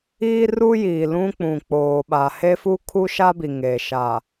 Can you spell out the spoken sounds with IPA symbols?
iː˦ r u˦ j iː˨ l ũ˦ k͡p ũ˨ k͡p oː˨ ɓ a˨ h e˦ f u˦ kʰ u˦ ʃ a˦ b i˨ ŋ eː˨ ʃ a˨

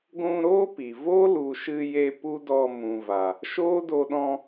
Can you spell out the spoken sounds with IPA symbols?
ɡʷ ũ˧ ɾ oː˦ p i˨ v o˦ l u˨ ʃ ɨ˧ j e˧ p u˦ d ɔ˧ m ũ˨ v a˨ | ʃ oː˦ d o˧ ɗ ɔ̃˧

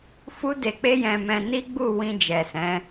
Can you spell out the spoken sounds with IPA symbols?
f u˦ d e˧ k͡p e˦ j ɛ̃˧ m ɛ̃˧ n i˦ ɡ͡b u˦˨ w ĩ˧ d͡ʒ ɛ˨ s ɛ̃˨˦

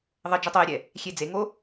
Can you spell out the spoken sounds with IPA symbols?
ðˤ ə d͡ʒ u tˤ o j ɾʲ ɛ | xʲ e d͡z e ŋ o

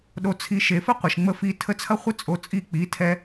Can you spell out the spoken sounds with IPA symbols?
ɗ o˧ t͡sʰ i˧ ʃ e˨ f ə˦ qʷ ə˨ ʃ ŋ͡m ə˧ f i˧ tʰ ə˧ t͡sʰ ɐ˦ χʷ ə˦ t͡sʼ o˧ t͡sʼ i˦˨ k͡p i˨˦ tʰ ɛ˦

